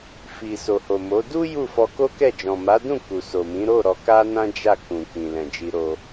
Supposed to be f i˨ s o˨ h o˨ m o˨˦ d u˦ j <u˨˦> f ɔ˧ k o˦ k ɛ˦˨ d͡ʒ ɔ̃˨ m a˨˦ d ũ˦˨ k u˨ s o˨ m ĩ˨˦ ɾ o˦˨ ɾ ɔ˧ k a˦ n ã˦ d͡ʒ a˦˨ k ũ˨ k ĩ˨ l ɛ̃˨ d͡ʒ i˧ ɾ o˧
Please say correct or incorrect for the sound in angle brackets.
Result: incorrect